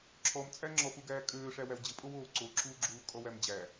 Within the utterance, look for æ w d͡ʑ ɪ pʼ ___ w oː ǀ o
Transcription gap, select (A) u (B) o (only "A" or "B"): B